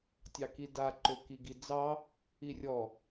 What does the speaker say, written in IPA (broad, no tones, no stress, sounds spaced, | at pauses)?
tʲ ɑ k i d a ǃ ø k i ɡ i d͡z ɑ | i rʲ ɔ